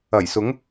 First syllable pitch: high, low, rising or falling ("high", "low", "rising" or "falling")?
low